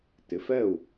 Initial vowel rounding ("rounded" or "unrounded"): unrounded